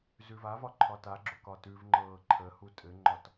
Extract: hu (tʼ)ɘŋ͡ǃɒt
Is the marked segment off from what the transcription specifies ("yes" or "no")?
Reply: no